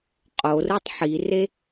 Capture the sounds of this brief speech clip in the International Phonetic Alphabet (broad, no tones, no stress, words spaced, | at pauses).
qʼorɯtˤ ħire